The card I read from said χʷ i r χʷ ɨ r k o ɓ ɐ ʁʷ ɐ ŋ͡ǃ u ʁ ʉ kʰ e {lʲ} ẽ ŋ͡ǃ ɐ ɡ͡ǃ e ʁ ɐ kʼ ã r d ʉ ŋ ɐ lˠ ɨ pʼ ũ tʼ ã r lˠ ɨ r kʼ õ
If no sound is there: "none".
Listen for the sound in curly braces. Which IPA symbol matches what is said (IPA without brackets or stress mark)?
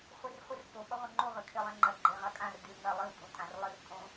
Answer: lˠ